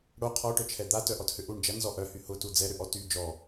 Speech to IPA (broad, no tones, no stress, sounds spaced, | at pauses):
ɽ o qʰ ɔ ʈ œ t͡ʃʰ ɛ d̪ a t œ ʔ ɔ t h ʏ ʔ u ɳ d͡ʒ ɐ n z ɔ ʔ œ h y h ʊ t u d͡z ɛ ɾ ʏ ʔ ɔ t y d͡ʒ ɔ